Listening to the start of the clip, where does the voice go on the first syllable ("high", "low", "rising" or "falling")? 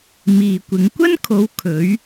low